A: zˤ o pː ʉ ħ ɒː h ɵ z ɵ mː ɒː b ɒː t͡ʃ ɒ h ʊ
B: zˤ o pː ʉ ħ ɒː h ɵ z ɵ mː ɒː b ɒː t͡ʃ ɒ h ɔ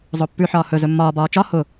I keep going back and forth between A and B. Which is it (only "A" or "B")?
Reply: A